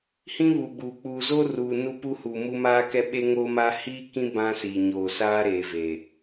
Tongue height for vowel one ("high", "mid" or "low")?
high